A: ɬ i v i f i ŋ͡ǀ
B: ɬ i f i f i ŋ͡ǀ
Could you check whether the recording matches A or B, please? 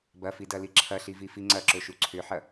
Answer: A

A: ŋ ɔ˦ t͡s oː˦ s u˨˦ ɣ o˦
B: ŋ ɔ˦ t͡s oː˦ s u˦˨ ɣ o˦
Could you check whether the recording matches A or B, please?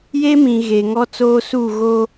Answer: B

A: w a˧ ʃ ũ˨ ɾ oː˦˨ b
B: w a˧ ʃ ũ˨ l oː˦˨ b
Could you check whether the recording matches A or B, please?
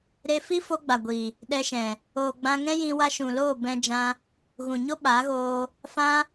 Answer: B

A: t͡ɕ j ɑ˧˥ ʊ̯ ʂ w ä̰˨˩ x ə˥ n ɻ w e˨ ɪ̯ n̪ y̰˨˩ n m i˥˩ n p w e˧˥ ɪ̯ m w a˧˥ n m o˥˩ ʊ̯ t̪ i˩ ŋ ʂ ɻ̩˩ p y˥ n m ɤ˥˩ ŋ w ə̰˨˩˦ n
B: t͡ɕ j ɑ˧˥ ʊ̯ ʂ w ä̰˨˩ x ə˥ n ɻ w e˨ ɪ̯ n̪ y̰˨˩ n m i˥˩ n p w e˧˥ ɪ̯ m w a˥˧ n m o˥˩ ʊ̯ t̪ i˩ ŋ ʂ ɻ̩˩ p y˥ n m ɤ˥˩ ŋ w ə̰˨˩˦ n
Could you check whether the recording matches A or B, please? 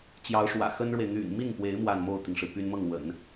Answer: B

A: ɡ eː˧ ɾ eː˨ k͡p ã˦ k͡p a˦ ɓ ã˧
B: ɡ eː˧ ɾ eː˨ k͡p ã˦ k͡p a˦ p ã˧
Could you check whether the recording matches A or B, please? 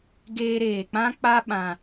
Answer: A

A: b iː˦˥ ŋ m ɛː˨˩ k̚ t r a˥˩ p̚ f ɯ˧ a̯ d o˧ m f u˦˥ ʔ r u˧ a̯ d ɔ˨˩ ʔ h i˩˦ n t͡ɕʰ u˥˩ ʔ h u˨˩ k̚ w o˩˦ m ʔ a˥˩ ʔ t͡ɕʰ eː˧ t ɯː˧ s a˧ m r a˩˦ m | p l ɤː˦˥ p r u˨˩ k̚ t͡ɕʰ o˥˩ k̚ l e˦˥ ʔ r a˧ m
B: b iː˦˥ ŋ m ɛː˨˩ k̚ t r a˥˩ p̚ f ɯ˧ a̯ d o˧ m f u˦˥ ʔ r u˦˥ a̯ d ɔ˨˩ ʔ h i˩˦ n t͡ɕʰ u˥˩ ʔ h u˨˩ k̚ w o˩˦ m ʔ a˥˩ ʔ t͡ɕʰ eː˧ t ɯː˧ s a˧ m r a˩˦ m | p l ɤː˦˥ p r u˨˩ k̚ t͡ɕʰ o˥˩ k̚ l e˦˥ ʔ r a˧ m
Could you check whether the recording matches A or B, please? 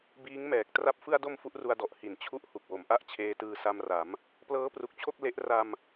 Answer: A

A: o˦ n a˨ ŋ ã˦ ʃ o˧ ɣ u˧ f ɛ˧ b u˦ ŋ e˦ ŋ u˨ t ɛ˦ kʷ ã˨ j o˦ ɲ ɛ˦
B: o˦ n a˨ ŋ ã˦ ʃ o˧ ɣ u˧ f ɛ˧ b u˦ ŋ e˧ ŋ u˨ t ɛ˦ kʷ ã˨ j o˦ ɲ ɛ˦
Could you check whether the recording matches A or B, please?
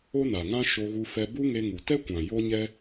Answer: B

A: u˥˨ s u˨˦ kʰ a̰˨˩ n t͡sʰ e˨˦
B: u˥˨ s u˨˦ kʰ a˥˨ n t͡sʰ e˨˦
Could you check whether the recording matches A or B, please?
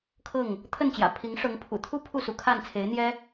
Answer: B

